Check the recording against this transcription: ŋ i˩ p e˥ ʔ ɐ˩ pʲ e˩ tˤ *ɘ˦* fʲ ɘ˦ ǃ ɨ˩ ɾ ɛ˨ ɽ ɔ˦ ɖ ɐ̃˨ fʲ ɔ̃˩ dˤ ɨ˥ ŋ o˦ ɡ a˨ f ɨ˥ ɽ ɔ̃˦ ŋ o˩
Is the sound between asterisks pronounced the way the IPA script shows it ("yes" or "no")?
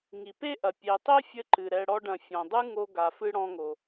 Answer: no